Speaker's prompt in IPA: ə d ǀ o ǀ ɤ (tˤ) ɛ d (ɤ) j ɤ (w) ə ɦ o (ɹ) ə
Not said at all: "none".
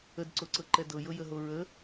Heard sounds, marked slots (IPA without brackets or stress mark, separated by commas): ǃ, ɤ, j, ɹ